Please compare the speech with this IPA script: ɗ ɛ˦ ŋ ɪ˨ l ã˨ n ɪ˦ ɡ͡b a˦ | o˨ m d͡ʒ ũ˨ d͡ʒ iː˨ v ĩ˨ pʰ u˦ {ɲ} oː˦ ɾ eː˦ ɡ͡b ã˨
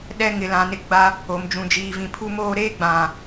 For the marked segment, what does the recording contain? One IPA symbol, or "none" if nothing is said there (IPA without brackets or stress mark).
m